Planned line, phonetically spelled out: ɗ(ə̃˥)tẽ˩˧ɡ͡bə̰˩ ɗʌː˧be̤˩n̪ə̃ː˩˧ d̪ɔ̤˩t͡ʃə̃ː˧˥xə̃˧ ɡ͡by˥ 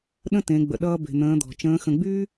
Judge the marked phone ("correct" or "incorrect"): correct